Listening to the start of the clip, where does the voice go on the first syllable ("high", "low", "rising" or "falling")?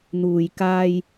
low